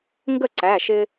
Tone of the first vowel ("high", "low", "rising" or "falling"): falling